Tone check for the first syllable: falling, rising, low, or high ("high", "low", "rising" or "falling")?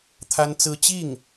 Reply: high